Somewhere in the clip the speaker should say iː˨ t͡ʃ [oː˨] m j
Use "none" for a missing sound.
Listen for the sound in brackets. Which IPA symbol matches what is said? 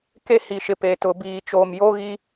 oː˨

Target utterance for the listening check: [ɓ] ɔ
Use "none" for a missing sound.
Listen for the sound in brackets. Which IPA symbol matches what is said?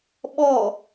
ɓ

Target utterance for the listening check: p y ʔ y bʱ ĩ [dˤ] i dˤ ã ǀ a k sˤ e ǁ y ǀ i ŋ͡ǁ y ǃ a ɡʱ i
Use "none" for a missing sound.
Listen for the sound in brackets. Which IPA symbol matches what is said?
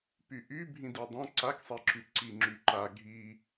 d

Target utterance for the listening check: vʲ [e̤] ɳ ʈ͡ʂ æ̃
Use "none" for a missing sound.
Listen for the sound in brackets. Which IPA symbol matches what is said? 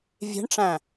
e̤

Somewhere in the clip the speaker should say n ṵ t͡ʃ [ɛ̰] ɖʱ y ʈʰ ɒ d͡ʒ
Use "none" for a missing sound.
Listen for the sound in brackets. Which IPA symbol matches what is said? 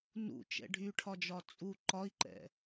ɛ̰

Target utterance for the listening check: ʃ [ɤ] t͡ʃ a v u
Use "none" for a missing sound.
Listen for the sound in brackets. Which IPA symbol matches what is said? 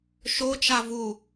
o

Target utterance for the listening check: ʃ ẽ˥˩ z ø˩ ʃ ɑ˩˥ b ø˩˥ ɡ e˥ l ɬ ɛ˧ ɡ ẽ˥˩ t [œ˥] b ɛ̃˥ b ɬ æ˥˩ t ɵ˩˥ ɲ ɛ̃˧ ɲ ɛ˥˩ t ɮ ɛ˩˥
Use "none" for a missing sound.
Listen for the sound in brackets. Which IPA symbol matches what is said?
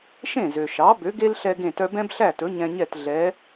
œ˥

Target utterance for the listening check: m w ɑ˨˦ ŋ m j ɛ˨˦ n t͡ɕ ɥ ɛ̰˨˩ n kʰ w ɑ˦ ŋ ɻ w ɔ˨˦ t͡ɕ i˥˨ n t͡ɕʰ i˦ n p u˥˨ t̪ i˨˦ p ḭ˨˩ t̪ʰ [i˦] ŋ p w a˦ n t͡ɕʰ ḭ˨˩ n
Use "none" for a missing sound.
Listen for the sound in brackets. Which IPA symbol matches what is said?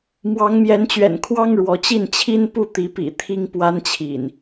i˦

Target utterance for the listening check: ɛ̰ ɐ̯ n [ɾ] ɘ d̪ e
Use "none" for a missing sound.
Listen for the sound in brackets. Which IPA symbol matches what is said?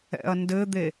d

